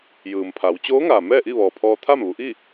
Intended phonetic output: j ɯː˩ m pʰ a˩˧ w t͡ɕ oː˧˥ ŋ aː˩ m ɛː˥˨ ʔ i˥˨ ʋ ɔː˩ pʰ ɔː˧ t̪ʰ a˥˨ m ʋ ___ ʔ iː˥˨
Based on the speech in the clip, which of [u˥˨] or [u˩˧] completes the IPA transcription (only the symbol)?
u˩˧